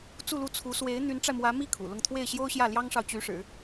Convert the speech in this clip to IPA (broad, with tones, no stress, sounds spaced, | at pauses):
t͡s u˥˧ l u˥˩ t͡sʰ u˧˥ s w e˧˥ ɪ̯ n̪ y˧˥ n ʈ͡ʂ a˧ ɪ̯ m w ä˧˥ m i˥˩ kʰ ṵ˨˩ l ʊ˥˧ ŋ t̪ʰ w e˥˩ ɪ̯ ɕ j o˥ ʊ̯ ɕ j ä˥˩ l j ɑ˥ ŋ ʂ ɑ˨ ʊ̯ t͡ɕ y˧˥ ʂ ɻ̩˨˩˦